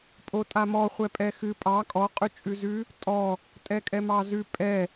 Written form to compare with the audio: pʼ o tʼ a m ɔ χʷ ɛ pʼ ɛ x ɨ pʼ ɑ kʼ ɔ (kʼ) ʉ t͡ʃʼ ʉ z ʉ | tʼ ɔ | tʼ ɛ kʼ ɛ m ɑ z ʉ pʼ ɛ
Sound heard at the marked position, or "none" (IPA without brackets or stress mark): qʼ